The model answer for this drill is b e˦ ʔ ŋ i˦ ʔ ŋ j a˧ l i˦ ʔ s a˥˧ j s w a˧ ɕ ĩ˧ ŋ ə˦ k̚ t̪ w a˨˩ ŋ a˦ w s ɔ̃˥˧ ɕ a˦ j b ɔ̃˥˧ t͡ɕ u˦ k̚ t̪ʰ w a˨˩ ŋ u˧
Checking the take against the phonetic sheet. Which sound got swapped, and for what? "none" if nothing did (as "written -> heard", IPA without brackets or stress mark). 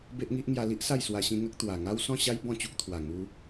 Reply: none